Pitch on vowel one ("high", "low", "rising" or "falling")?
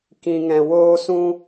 low